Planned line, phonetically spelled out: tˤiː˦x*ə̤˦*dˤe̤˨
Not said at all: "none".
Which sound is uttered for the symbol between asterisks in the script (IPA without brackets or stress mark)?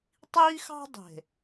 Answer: ɑ̤˦